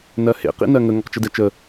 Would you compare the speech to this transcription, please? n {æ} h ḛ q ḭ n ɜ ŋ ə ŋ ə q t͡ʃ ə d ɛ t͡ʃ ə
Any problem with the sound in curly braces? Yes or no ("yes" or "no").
yes